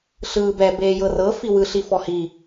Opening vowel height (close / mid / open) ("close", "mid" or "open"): close